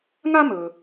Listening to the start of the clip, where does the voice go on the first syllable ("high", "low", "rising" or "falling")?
high